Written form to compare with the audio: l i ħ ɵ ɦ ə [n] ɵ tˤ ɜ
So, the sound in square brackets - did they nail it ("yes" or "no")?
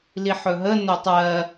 yes